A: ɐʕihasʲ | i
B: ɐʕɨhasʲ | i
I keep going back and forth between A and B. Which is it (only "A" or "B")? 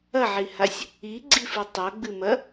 A